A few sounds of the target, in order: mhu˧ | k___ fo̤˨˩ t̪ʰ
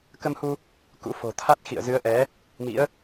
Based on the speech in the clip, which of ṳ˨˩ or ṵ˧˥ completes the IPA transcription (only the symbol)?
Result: ṵ˧˥